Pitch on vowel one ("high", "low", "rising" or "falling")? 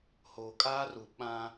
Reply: low